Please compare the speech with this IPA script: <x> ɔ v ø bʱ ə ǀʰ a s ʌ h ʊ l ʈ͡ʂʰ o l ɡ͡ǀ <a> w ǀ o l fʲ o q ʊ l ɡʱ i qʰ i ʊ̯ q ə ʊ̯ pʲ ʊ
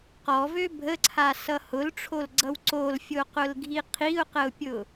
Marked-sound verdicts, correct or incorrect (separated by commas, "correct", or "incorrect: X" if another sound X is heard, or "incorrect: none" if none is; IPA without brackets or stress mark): incorrect: q, incorrect: ʌ